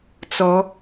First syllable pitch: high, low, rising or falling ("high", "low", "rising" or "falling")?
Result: rising